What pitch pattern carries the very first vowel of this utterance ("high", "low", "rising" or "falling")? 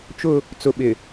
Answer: high